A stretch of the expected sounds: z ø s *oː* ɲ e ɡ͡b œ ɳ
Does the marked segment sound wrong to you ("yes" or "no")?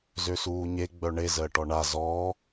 yes